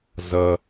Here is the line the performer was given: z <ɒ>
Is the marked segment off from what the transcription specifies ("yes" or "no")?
yes